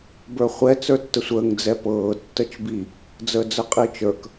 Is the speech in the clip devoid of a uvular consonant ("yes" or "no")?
no